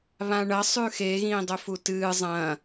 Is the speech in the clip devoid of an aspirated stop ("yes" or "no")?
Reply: yes